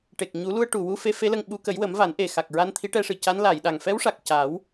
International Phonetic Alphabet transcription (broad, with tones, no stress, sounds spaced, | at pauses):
ʈ e˨˩ k̚ ɲ u˨˩˦ l u˧ ə̯ ʈ u˨˩ w u˧ f e˧˥ f e˧˥ l ə˧ ŋ ɓ u˧˥ k ə˨˩˦ j w ə˨˩˦ m v a˨˩˦ n ʔ e˨˩ x a˨˩ k̚ ɹ a˧ n t̪ʰ i˧˥ ʈ ɛ˧ ʂ ɨ˨˩˨ c a˧˥ n l a˨˩˨ j ɗ a˨˩ ŋ f ɛ˧˥ w ʂ a˨˩ k̚ c a˨˩˦ w